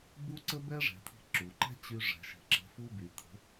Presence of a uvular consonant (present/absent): absent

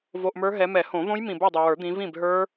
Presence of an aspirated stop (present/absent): absent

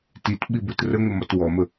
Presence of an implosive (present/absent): present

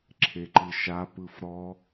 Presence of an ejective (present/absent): absent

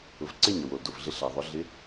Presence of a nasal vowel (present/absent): absent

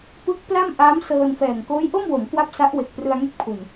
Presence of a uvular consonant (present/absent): absent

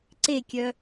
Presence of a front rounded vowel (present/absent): present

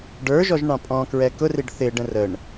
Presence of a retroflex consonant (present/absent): present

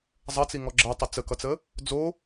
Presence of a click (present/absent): present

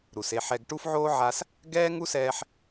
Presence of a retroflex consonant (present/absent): present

